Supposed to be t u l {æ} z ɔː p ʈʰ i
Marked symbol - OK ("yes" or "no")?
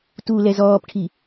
no